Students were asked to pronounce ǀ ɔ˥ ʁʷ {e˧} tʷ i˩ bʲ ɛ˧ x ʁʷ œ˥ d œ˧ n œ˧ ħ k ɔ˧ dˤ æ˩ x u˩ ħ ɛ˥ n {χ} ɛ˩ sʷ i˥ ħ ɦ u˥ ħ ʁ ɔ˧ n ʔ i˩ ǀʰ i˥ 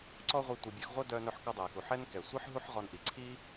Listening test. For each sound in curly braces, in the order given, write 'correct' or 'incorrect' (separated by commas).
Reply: incorrect, incorrect